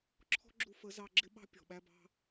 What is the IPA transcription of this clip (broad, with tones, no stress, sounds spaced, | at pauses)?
ǁʰ ɔ̤˦ ɡ͡ǁ u˧ f ə˨˦ z ɑ˧ ɡ͡ǁ ɪ˦ ɓ ɑ̤˦ pʲ ɔ̤˨ ɓ æ˧ b ɑ̤˧